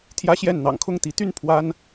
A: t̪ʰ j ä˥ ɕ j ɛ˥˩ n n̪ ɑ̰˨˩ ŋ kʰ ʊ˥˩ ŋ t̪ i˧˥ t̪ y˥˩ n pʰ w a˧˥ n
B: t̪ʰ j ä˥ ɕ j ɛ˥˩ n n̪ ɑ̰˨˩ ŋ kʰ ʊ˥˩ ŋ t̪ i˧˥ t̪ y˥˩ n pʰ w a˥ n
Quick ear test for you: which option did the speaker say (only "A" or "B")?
B